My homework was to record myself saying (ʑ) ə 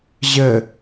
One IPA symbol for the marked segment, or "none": ʑ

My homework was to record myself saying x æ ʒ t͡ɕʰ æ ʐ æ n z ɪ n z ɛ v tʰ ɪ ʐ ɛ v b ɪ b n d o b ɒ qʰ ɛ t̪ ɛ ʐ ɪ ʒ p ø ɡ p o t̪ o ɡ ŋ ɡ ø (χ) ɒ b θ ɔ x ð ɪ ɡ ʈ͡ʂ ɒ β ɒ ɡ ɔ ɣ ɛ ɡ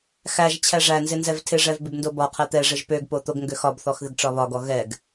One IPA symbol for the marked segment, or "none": x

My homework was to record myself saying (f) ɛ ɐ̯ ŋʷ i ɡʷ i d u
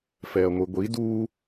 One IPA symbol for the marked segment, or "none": f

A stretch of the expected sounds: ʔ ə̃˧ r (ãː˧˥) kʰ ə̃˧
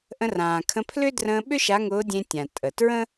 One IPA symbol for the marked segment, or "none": ãː˩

